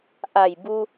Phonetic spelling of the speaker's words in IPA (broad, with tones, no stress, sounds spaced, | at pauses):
ʔ a˧˩ j b u˧